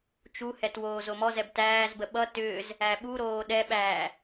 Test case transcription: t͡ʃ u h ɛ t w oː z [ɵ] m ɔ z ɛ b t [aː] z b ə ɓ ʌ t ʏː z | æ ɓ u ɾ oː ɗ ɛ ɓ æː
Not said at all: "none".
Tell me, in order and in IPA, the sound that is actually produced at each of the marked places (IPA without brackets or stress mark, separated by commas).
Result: o, æː